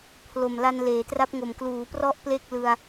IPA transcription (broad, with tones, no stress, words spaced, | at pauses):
pʰlo˨˩mla˧n leː˩˦tra˦˥p̚ŋo˨˩m kluː˩˦prɔ˦˥ʔ ple˥˩k̚lɯ˧a̯